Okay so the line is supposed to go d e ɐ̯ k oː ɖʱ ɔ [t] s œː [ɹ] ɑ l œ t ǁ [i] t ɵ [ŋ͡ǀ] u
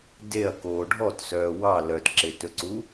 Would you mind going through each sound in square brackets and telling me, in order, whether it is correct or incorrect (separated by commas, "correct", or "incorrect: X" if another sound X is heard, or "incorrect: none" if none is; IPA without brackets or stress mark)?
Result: correct, incorrect: w, incorrect: e, incorrect: ǀ